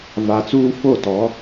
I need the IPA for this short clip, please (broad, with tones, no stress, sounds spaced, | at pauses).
v a˨ t͡s uː˦ f o˦˨ t ɔ˨˦